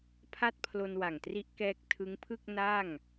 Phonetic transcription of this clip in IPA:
pʰa˥˩t̚pʰlo˧nwa˨˩ŋtri˦˥ʔ kɛː˥˩k̚ tʰɯ˦˥ŋpʰɯ˥˩k̚ na˥˩ŋ

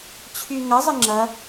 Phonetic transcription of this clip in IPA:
t͡ɕʰyŋɐ zˤɘŋ͡ǁɐ

